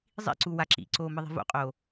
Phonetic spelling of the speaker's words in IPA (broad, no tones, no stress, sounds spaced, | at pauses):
zˤ ḭ ǀ u w a ǁ ḭ ǀ oː m ɯ ðˤ i̤ v o̰ qʼ oː